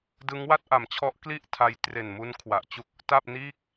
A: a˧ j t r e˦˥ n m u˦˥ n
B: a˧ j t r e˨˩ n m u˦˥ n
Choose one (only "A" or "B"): B